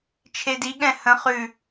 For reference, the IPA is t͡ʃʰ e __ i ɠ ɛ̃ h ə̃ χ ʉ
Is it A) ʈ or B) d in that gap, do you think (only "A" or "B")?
B